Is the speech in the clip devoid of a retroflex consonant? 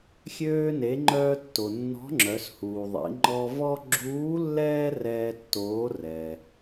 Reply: yes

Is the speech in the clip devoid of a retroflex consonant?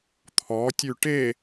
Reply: no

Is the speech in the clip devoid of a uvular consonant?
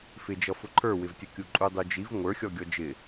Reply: yes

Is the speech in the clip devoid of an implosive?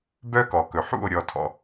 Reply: yes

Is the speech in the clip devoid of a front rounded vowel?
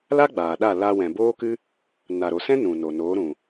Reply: yes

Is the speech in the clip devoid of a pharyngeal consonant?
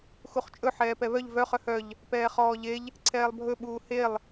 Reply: no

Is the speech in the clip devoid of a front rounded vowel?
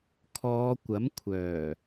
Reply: no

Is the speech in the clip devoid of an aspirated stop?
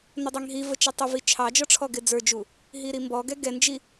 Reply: no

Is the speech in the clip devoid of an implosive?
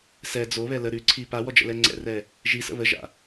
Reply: yes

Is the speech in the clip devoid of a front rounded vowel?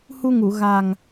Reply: yes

